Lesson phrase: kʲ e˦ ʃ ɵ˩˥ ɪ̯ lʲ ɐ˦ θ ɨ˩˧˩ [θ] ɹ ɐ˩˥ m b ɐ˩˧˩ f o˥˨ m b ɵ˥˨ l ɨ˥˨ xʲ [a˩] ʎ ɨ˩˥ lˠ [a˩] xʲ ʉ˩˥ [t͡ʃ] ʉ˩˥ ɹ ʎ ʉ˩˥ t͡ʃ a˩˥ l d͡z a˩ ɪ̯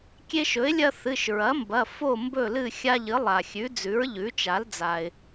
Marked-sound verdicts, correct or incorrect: incorrect, incorrect, correct, incorrect

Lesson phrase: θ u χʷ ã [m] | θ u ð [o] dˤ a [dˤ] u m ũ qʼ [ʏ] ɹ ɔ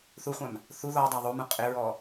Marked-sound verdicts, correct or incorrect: correct, incorrect, incorrect, incorrect

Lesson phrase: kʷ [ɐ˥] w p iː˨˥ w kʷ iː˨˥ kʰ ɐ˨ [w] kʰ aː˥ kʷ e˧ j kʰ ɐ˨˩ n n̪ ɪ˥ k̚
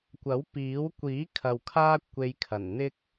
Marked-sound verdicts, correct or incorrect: incorrect, correct

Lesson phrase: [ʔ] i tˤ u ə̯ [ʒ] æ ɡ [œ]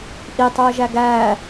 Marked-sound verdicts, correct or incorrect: correct, correct, incorrect

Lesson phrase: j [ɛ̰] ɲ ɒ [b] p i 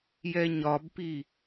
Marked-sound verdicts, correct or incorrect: incorrect, correct

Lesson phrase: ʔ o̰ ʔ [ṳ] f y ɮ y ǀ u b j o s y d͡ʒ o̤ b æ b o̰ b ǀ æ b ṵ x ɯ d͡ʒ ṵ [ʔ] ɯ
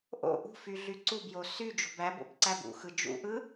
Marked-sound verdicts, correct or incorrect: correct, correct

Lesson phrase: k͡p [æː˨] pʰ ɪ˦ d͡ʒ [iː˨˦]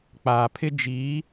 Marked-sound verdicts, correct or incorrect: incorrect, correct

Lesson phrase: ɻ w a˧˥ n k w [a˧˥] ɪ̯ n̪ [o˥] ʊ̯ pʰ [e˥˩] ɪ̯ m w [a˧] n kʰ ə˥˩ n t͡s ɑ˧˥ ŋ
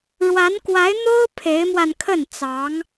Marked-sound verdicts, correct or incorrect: correct, correct, incorrect, correct

